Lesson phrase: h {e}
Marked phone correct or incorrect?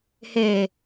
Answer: correct